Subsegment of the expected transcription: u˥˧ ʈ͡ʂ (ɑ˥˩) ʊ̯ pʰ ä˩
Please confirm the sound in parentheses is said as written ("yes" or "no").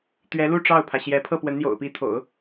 yes